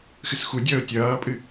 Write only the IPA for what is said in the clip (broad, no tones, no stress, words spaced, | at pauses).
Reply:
xɨsxu dʲʌːʊ̯tʲʌːpʼɨ